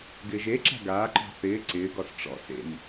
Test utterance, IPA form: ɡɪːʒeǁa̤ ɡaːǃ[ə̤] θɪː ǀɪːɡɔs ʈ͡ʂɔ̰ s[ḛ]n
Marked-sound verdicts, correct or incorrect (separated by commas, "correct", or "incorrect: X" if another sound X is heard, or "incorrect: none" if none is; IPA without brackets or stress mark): incorrect: ɔ̤, correct